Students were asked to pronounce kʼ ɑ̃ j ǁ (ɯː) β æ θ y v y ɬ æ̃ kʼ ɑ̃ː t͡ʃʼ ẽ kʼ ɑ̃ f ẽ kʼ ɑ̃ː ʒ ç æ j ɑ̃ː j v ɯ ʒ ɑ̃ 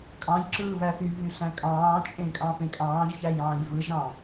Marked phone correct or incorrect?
correct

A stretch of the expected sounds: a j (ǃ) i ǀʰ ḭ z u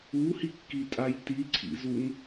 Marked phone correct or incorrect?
incorrect: t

